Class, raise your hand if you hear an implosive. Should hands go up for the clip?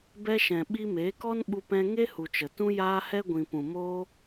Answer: yes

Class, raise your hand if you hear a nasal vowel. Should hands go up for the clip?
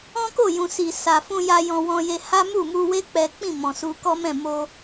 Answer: yes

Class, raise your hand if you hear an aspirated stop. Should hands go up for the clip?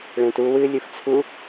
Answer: yes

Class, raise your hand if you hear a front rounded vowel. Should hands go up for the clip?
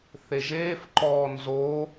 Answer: no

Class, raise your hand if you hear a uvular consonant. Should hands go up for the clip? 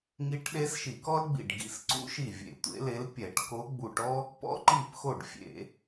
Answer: no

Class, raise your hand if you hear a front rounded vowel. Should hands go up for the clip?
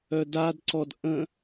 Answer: yes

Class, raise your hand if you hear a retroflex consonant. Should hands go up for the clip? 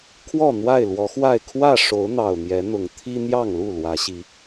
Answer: yes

